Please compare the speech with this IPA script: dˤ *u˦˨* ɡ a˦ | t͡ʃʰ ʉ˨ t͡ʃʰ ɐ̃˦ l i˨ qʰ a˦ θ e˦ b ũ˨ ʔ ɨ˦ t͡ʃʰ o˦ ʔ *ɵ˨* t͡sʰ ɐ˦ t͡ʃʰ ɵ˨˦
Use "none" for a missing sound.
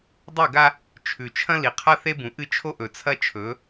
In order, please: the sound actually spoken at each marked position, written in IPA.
u˦˨, ɵ˨

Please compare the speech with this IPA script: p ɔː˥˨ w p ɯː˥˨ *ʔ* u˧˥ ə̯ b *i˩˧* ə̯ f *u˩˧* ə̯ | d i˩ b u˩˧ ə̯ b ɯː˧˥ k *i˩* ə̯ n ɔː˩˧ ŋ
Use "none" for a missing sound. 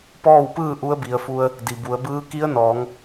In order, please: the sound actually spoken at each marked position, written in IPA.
ʔ, i˩˧, u˧, i˧˥

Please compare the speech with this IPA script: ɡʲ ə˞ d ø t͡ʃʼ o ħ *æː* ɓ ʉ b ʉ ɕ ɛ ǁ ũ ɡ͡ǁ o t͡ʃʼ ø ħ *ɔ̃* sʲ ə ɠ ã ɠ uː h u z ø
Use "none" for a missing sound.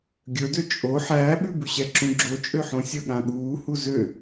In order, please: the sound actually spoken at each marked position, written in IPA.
æː, õ

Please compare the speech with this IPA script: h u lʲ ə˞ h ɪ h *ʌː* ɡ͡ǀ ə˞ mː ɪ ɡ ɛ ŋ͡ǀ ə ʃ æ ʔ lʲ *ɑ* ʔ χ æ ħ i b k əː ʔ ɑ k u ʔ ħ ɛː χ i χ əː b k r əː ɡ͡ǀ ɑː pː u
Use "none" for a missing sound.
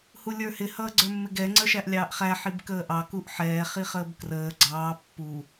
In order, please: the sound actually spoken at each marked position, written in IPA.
ʌː, ɑː

